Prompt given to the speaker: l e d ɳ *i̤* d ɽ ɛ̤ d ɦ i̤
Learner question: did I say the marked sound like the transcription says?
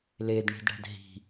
yes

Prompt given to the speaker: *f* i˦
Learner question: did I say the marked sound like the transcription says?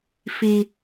yes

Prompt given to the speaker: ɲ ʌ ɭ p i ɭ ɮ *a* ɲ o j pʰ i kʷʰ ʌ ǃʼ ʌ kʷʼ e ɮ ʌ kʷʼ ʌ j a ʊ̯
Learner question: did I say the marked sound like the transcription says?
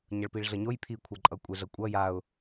no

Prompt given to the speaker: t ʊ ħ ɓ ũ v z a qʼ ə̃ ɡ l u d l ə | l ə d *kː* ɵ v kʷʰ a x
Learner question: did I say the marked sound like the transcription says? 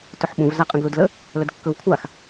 yes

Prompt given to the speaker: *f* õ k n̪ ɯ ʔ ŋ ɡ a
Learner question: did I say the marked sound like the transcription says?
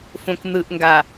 yes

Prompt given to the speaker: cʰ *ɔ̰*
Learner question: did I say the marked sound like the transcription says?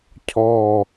no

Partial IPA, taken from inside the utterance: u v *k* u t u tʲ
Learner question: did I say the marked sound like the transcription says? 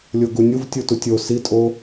no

